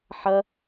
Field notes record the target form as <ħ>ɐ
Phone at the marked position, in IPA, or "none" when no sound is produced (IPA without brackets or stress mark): ħ